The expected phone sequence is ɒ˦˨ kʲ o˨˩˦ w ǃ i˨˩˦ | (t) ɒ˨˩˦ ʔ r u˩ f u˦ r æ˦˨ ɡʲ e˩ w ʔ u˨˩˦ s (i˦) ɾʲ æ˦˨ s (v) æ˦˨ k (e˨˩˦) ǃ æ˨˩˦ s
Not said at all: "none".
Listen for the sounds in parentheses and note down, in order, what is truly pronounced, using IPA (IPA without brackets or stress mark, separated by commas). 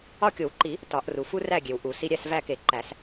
t, i˦, v, e˨˩˦